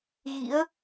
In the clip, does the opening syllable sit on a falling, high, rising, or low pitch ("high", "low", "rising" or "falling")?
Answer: rising